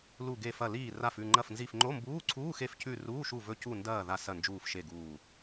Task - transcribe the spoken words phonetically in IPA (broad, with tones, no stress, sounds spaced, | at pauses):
l u˦˨ ɡ e˦˨ f ɐ˦˨ l iː˦˨ r a˦˨ f ʉ˦˨ ŋ͡ǃ ɐ˦˨ f n z i˦˨ f ŋ͡ǃ o˧˥˧ m b uː˧˥˧ ǀʰ uː˧˥˧ x e˦˨ f c ʉ˦˨ r uː˧˥˧ ʃ u˦˨ v ɵ˦˨ c u˦˨ n d ɐː˦˨ ð a˦˨ s ɐ˦˨ n d͡ʒ uː˦˨ f ʃ e˦˨ ɡ uː˦˨